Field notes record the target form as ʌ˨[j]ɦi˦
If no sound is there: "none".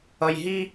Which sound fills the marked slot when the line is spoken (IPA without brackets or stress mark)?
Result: j